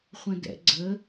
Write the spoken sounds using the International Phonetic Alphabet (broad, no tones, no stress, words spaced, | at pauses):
χʷə̃dɛ̰ ɡ͡ǀə